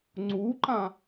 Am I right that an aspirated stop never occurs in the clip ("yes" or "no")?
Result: yes